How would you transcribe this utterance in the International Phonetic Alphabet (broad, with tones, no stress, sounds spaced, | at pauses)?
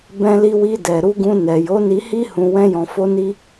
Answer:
b ɛ̃˧ l i˧ w i˧ d ɛ˨ ɾ u˧ ɡ ũ˧ n ɛ˨ j o˨˦ n i˧ h i˦ h ũ˧ w ɛ̃˦ j ɔ̃˧ f o˦ n i˦